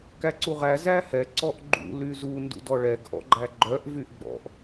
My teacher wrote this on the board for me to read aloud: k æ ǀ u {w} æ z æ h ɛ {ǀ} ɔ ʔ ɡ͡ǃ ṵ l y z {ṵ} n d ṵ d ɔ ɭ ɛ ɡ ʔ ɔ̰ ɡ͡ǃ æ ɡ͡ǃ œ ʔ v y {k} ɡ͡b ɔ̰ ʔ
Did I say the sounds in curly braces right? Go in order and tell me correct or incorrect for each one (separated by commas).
incorrect, correct, incorrect, incorrect